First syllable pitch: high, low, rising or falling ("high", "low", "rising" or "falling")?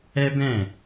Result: high